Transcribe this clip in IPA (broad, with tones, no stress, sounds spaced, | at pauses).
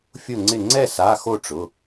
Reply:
fʲ ʊ˥˩ ŋ͡ǀ ɪ˥˩ ŋ͡ǀ ɛ˥˩ s a˩˧˩ x o˥˩ ʈ͡ʂ ʊ˩˧˩